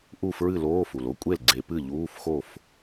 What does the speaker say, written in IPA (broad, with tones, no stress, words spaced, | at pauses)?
ʔu˥˩fɹɨ˥˩loː˧˥˧ fu˩lo˥kʷʼe˥˩lɡ͡ǀe˧˩˧ pɨ˥˩ʎuː˧˥˧fxo˥˩f